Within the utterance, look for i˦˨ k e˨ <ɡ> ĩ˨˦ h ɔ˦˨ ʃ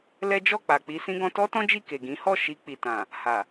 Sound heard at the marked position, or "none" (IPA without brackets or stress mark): ɡ